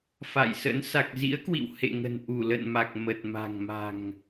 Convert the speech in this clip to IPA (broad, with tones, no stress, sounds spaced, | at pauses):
f a̰˧˨ j s ə̰˧˥ n s a˨˩ k̚ z ḭ˧˥ ə̯ k w ḭ˧˨ w h ḛ˧˨ ŋ ə̤˨˩ n ʔ u˧˩ l ə̰˧˨ n m a˨˩ k̚ m ə˨˩ t̚ m a̤˨˩ ŋ m a̤˨˩ ŋ